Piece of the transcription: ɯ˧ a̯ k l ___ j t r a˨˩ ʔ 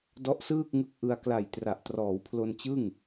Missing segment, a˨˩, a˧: a˨˩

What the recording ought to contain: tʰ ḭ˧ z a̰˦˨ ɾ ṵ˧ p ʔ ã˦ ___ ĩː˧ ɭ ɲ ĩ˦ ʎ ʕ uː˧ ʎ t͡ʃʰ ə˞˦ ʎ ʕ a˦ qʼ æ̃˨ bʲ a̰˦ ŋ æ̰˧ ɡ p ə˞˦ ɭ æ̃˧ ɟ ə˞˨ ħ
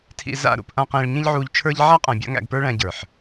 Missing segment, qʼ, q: q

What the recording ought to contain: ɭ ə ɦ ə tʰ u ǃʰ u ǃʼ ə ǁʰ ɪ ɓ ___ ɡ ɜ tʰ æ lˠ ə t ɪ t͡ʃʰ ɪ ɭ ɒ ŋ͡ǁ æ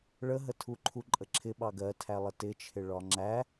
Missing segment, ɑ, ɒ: ɑ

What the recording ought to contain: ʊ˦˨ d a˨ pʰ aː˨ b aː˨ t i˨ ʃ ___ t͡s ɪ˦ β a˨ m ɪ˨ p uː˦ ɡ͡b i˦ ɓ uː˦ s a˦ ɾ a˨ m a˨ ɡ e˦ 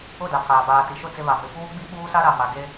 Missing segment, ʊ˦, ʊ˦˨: ʊ˦˨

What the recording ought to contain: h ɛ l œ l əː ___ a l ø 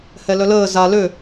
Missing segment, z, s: z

